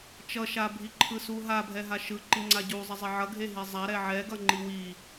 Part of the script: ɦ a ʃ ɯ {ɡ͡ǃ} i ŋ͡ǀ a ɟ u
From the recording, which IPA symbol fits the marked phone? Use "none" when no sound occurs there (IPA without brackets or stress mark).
ǃ